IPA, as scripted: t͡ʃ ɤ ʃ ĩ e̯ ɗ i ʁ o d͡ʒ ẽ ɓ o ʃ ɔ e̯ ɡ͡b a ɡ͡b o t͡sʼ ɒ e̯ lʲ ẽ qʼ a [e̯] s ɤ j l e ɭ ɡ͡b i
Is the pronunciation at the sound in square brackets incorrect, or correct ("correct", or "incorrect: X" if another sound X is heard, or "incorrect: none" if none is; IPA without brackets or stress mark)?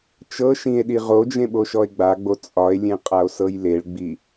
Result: incorrect: o̯